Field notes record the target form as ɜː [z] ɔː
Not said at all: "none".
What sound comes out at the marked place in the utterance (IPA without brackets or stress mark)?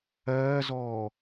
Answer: z